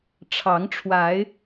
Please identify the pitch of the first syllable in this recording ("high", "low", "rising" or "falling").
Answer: rising